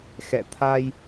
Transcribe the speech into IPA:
x ɛ̰˧˨ t̪ʰ a˧ j

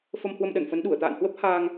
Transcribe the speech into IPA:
f ə˧ m h w ə˧ m ɗ ə˧˩ n f ə˨˦ n ɗ u˧˩ ə̯ t̪ a̰ː˧˨ n h w ə˦˥ p̚ h aː˧ ŋ

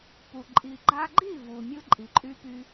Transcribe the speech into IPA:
p u˨ ǃʼ i˨ ɡ͡ǃ a˧ ɡ͡ǃ i˦˨ v u˨ mʲ ɯ˦ ǃʼ i˨ ǃʼ y˦ p y˦

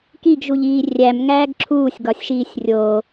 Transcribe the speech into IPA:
k i ɡ ʒ u ʎ iː rʲ æ m ŋ æː ɡ ǁʰ uː sʲ ɡ ɒ sʲ ʃ iː sʲ rʲ o

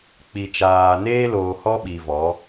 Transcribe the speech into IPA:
k͡p i˨ t͡ʃ aː˨ n eː˦ l oː˨ h ɔ˦ ɓ i˨ v ɔ˨˦

